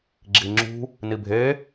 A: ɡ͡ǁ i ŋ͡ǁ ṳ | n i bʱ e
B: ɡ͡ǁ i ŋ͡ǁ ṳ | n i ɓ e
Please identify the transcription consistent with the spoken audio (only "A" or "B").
A